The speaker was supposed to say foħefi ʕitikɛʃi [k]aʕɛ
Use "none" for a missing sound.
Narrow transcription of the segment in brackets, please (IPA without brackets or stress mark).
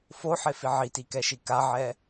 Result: k